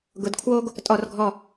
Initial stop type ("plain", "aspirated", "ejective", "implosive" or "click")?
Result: plain